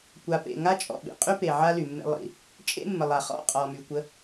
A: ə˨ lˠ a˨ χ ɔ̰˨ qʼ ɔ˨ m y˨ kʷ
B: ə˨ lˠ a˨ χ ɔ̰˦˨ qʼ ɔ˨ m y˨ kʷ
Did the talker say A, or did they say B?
B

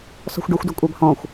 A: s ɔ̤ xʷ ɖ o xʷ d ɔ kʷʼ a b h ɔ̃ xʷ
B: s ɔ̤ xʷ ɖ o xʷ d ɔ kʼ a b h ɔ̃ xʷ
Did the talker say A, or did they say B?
A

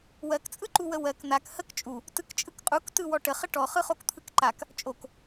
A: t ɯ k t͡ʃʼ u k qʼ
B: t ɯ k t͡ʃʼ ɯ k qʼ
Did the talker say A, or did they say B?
B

